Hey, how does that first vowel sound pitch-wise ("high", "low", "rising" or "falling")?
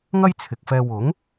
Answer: high